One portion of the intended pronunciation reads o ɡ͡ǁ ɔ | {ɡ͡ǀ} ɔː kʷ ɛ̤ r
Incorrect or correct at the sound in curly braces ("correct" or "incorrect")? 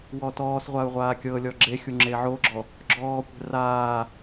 incorrect